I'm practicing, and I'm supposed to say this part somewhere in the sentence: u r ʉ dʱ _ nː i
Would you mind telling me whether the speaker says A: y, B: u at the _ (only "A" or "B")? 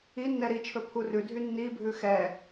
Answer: A